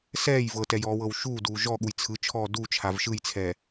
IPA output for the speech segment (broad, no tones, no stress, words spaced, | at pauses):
sɛːj vɤtɛjɔːwɤw ʃuːduː ʒɔɠuj t͡sʰɯt͡ʃʰɔː dut͡ʃʰav ʃɯjt͡sʰɛ